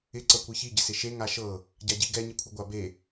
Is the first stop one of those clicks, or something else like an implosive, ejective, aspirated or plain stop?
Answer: click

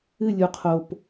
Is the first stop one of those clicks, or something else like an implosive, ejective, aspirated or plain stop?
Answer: aspirated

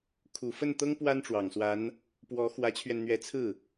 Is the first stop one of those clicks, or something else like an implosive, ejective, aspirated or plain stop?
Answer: aspirated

